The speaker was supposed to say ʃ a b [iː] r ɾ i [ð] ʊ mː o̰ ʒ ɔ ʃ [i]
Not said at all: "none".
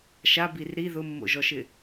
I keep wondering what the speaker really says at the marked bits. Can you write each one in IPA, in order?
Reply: i, ð, ɪ

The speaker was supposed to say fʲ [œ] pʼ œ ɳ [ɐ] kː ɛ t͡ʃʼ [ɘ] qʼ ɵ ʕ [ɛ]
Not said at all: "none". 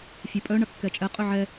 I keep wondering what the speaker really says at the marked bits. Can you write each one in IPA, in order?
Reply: œ, ɐ, ɛ, ɛ

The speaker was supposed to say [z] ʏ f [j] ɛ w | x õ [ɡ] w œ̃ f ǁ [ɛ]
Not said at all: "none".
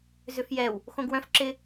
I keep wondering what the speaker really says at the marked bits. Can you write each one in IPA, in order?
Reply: z, j, ɡ, ɪ

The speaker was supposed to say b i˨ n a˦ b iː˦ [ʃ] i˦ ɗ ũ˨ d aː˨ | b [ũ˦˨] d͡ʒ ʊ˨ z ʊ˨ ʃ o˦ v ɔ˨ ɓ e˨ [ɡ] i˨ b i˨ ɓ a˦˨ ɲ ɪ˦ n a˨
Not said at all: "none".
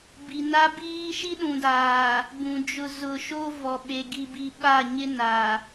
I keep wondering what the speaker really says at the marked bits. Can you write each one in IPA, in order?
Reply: ʃ, ũ˨, ɡ

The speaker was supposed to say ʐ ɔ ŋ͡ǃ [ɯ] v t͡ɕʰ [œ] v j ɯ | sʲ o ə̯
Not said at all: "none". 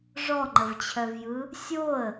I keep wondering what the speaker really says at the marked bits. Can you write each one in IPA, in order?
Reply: ə, œ

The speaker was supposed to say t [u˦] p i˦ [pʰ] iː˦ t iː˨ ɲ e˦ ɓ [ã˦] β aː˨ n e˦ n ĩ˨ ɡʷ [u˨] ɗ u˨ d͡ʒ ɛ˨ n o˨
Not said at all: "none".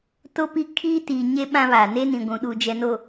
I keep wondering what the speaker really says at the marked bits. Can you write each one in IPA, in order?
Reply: o˦, kʰ, ã˦, ũ˨

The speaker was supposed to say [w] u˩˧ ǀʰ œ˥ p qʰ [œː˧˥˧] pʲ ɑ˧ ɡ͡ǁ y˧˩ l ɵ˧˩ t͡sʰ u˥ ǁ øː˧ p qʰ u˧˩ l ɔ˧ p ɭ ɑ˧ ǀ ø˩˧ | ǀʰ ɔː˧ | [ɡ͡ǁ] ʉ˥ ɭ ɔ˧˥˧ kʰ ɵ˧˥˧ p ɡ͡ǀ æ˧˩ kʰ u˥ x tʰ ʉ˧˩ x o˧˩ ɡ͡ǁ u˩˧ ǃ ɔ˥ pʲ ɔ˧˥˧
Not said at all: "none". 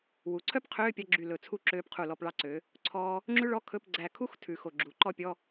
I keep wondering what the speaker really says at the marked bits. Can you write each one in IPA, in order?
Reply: w, øː˧˥˧, ŋ͡ǁ

